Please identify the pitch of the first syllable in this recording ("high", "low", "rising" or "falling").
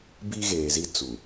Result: high